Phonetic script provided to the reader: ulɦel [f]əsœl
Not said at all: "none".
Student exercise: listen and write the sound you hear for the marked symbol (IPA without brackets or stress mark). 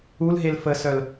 f